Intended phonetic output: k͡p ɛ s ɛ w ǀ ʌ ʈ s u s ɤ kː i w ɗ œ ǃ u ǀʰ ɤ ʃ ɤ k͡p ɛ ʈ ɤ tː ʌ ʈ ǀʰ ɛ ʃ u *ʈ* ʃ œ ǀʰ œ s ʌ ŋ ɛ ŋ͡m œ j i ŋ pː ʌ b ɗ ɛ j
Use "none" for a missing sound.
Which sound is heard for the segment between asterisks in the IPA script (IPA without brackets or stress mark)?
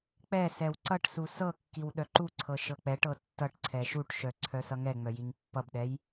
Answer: ʈ